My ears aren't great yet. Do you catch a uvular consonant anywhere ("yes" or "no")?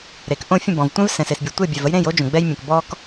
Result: no